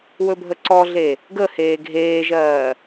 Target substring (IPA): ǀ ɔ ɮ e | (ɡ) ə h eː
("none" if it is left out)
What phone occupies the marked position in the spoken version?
ɡ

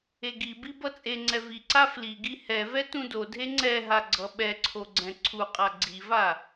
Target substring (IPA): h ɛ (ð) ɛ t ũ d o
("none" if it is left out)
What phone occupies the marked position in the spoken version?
v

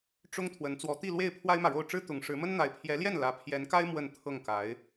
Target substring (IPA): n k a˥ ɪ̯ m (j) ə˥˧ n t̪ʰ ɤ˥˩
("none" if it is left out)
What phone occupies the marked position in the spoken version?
w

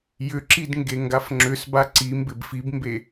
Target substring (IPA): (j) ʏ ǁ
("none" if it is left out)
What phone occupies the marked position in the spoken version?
j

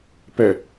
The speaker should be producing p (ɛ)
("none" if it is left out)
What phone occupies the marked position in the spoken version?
ɛ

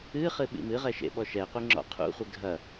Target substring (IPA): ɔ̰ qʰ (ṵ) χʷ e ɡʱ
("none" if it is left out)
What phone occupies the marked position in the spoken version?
ṵ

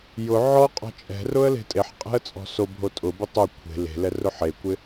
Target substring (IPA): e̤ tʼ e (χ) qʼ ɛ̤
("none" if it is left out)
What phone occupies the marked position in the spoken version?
ħ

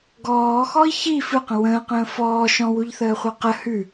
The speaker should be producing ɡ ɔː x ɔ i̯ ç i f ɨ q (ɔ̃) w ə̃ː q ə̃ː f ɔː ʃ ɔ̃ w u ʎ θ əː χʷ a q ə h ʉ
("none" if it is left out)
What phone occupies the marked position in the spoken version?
ə̃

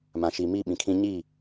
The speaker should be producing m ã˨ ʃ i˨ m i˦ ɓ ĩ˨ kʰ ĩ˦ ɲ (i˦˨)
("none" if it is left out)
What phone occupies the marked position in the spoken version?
i˦˨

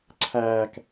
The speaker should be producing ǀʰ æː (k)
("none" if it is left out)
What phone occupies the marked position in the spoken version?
k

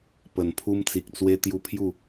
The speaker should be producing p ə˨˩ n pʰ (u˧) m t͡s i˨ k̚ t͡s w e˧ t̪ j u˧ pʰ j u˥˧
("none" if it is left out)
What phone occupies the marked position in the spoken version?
u˧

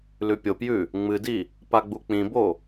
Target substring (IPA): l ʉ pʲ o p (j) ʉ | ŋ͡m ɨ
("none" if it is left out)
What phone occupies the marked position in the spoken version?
j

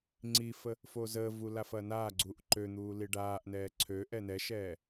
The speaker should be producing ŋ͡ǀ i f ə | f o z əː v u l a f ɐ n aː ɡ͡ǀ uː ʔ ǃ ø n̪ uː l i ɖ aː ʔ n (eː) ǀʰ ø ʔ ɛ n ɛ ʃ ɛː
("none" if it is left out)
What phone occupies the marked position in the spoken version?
ɛː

